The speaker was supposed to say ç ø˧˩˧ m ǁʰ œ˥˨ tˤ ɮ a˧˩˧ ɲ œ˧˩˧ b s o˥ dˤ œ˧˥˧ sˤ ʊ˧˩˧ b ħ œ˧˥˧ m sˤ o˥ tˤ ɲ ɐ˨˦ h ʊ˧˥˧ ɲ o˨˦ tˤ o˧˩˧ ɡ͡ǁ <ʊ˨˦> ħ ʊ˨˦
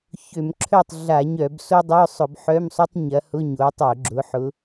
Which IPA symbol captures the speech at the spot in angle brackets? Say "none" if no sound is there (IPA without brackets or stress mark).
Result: ʊ˨˦